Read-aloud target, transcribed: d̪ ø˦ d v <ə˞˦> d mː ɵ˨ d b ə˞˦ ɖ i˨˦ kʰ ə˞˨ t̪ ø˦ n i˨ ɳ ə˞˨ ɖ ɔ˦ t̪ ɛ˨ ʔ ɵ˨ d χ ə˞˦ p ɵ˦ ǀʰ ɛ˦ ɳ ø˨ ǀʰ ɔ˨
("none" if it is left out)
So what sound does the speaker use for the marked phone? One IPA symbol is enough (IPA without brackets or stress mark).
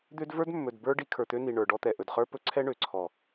ə˞˦